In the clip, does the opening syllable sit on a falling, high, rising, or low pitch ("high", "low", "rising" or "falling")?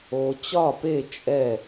low